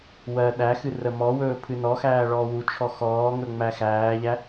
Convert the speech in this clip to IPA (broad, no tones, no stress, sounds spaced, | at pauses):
w ɜ ɗ æ x ɨ r ə m ɔ w ɵː pʰ ɨ n ɔ x æː ɭ ɔː w u t͡ʃʰ ɔ x ɔː ŋ ɵ ŋ͡m æ x æː ʎ æ